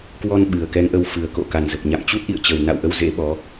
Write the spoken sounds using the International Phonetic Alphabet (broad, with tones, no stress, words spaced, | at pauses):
kwɔ˧n ɓɨ˨˩ə̯kɛ˨˦ŋʔə˧w fɨ˨˩ə̯ko̰˧˨ ka˨˩nzə˨˩p̚ɲa̰˧˨m t͡ɕu˦˥t̚ʔḭ˧˨ə̯t͡ɕə˨˩w na̰˧˨wʔə˧w zḛ˧˥ɓɔ˨˦